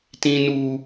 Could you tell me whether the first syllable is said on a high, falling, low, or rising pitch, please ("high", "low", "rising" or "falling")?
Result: high